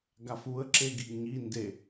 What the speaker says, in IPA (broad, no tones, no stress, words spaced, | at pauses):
ɡafuə̯ ǁeɡiɡɲi nde